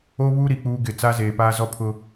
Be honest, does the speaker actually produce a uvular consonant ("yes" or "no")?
no